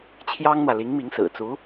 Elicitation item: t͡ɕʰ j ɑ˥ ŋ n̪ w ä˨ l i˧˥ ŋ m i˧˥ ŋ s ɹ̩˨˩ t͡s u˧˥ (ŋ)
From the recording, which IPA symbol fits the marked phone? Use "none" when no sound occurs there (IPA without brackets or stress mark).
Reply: none